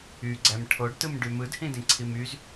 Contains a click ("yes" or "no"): yes